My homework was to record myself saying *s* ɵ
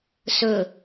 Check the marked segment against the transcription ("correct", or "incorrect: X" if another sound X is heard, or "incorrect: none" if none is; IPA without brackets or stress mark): correct